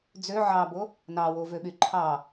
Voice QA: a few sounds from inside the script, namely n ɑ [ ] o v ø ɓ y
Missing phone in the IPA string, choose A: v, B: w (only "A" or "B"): B